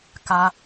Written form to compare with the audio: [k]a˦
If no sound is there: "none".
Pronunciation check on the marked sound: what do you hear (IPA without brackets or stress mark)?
k